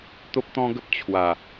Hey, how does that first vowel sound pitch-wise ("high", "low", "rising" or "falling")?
high